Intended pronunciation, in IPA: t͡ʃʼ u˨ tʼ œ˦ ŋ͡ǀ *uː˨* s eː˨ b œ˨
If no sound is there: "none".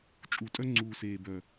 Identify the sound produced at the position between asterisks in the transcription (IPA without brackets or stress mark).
uː˨